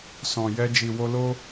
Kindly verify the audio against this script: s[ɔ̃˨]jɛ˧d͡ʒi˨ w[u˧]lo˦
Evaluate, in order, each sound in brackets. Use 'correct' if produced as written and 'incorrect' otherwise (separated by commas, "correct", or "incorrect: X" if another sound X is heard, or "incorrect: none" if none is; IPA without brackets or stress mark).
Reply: correct, incorrect: o˧